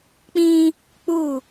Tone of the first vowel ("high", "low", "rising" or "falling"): high